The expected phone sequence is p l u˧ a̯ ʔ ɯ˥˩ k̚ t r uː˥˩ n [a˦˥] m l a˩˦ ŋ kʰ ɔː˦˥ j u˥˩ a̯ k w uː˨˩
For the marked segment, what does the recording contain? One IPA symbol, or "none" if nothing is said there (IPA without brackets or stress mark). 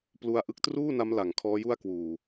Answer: a˦˥